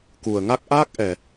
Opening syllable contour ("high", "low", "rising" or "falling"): low